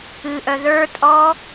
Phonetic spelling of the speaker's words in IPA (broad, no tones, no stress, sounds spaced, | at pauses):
ɨ ʔ œ ð ə˞ tʼ ɔ